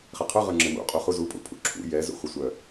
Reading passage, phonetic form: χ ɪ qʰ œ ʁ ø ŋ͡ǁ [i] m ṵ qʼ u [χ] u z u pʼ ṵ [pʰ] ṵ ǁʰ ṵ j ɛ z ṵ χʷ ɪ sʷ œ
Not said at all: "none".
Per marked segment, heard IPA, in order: ɪ, χ, pʰ

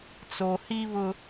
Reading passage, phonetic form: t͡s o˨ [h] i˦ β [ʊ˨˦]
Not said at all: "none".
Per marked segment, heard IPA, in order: h, ʊ˦

